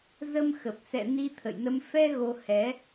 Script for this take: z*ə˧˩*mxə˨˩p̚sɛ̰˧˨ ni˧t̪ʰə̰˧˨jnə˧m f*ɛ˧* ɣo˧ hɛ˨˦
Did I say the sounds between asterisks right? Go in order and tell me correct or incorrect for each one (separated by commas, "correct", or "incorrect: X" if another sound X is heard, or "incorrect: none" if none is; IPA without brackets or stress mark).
incorrect: ə˧, correct